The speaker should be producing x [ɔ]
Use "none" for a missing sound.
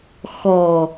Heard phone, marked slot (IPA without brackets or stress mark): ɔ